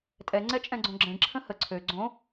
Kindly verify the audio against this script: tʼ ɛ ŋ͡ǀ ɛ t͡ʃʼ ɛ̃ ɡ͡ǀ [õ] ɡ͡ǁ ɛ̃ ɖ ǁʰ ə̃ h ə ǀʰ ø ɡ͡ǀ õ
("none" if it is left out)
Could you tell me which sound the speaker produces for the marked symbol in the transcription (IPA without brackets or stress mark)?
õ